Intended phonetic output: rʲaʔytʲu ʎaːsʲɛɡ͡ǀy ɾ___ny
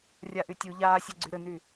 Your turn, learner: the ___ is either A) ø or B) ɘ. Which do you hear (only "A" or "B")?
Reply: B